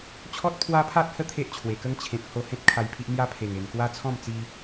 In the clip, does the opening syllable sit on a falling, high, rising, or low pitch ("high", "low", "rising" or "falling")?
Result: high